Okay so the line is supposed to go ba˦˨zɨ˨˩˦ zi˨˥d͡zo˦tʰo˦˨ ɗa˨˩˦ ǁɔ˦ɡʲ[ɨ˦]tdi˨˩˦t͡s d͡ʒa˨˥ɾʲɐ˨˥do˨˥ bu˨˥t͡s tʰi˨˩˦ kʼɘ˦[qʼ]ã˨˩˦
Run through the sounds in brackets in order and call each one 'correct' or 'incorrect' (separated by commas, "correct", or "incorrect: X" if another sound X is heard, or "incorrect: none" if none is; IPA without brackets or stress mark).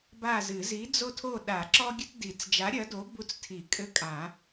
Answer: correct, incorrect: kʼ